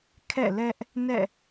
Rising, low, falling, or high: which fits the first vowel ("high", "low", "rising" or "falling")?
falling